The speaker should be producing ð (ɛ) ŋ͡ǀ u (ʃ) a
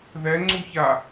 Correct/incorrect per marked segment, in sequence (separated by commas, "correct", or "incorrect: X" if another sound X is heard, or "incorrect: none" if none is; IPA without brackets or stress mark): correct, incorrect: ç